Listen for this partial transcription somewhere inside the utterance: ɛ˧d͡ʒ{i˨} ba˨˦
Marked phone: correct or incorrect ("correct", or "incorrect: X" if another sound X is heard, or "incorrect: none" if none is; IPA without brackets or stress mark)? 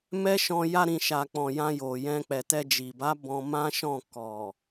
correct